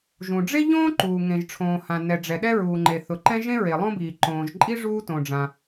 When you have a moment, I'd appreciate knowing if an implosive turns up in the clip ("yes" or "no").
yes